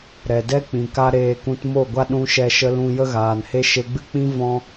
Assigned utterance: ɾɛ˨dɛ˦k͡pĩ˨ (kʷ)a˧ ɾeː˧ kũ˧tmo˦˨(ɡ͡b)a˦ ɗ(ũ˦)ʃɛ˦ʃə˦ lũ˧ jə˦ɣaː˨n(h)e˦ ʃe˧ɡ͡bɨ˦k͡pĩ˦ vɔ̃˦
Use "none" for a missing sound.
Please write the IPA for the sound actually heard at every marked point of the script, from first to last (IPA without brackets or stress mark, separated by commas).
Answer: k, ɡʷ, ũ˦, h